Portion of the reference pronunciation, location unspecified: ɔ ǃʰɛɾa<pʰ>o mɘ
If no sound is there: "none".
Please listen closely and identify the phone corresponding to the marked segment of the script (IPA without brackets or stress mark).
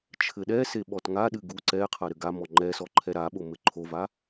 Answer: ɓ